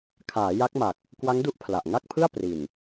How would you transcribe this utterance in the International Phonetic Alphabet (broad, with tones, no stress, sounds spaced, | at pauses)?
kʰ aː˩˦ j a˦˥ k̚ m a˨˩ k̚ | k w a˦˥ ŋ d u˦˥ ʔ pʰ l a˨˩ ʔ ŋ a˥˩ k̚ pʰ ɯ˥˩ a̯ p r i˨˩ n